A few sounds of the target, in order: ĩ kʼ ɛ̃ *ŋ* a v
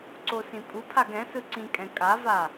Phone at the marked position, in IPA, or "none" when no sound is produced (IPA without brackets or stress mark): kʼ